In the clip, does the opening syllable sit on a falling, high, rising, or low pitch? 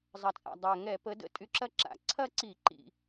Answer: low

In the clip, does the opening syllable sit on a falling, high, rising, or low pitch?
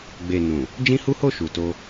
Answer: low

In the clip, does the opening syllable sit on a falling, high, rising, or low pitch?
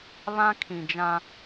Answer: high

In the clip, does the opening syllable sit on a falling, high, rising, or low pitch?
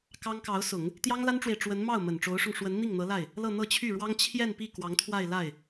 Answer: high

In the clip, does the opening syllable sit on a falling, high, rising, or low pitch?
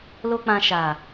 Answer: high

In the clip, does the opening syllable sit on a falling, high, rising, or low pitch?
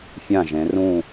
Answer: falling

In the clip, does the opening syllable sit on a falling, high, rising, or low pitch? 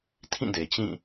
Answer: falling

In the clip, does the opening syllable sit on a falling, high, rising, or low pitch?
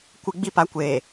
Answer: high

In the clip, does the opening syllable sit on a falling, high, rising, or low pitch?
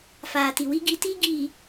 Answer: low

